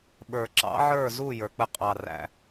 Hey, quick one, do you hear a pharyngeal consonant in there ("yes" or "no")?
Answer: yes